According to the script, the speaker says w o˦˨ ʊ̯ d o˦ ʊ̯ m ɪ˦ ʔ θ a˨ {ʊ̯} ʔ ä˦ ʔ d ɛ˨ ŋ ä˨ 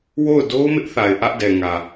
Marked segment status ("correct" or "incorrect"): incorrect